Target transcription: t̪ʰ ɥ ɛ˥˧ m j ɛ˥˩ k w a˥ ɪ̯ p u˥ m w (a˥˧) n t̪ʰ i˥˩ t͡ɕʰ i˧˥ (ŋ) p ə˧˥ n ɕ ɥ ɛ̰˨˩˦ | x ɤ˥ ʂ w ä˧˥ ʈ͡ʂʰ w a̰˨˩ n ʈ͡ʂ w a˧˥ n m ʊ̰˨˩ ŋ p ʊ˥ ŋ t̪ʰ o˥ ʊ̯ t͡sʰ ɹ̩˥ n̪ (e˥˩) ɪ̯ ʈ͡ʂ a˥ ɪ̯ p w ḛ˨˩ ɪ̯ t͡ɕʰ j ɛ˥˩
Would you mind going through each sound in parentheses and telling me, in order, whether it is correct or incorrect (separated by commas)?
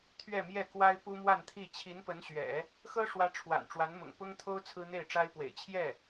correct, incorrect, correct